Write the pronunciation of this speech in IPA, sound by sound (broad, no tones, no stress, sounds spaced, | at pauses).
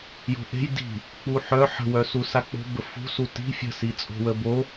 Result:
j o̤ ʔ e̤ j d i̤ | k͡p u ħ œ ħ ə̤ w œ s u s a k͡p o̤ b ə f ṳ s u t i̤ fʲ ə̤ s i t͡sʼ o̤ w ə b o